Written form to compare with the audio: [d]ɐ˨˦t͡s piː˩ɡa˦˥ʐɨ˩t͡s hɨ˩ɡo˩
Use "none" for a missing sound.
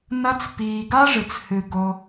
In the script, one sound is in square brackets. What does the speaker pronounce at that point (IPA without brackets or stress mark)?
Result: n